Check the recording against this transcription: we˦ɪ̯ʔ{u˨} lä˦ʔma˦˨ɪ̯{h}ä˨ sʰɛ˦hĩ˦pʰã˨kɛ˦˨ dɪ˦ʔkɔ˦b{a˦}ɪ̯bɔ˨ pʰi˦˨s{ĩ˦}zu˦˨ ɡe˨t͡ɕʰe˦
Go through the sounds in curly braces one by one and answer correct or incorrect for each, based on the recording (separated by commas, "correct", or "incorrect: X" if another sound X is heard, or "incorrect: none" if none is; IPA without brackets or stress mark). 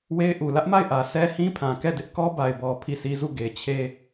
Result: correct, incorrect: ʔ, incorrect: a˨, incorrect: i˦